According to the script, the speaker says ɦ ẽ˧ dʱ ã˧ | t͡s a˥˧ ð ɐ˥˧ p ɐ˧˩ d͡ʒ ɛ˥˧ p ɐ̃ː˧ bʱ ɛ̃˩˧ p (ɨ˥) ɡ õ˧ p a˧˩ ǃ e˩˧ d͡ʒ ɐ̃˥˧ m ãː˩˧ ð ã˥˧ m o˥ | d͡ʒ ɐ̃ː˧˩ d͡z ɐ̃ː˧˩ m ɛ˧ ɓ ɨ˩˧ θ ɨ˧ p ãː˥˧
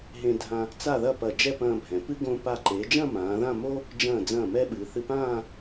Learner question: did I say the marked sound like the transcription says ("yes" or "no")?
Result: yes